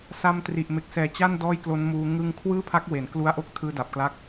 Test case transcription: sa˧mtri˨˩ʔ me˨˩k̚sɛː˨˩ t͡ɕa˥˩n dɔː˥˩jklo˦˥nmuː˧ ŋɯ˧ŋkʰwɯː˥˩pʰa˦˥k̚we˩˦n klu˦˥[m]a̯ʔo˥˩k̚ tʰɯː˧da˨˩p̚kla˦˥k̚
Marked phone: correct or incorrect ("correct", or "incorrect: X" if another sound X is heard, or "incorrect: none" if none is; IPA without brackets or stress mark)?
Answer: incorrect: none